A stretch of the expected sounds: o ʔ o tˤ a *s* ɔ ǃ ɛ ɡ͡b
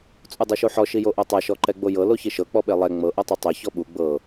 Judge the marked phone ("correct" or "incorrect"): incorrect